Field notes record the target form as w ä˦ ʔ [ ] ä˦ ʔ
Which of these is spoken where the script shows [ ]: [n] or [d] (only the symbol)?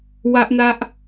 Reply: n